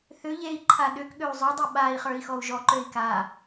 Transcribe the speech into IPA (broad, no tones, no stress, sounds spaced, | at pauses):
θ ʏ ʎ e i̯ ǃʰ a ɗ ʏ k ɠ ø u̯ zˤ ø dˤ u ɓ a i̯ χ ə˞ i̯ x ɔ u̯ ʒ ɔ ǃ ø i̯ k a